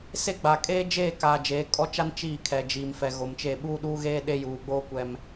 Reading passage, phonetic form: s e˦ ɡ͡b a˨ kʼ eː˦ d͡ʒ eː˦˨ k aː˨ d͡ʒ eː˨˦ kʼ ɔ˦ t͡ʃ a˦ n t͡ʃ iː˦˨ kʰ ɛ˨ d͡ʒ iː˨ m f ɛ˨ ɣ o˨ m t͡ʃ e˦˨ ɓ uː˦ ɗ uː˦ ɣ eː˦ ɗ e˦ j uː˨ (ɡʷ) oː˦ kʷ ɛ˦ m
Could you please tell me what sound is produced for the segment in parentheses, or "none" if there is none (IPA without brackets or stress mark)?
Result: ɡ͡b